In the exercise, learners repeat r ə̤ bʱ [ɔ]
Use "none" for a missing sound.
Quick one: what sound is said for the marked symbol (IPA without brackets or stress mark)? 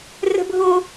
o